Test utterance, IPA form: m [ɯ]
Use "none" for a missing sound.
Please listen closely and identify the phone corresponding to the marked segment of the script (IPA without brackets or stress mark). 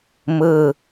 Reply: ɯ